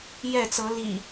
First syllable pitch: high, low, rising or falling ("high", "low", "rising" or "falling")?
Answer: falling